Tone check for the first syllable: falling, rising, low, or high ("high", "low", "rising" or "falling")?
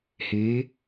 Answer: rising